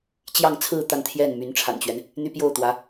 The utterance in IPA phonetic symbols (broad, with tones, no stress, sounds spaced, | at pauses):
t͡ɕ j ɑ˥˧ ŋ t͡sʰ ɹ̩˥˧ t̪ a˥˧ n t̪ʰ j ɛ˥˩ n m y˧˥ n ʈ͡ʂʰ a̰˨˩ n t͡ɕ ɥ ɛ˦ n | n̪ y˥ p j o˥˩ ʊ̯ t̪ w ä˧˥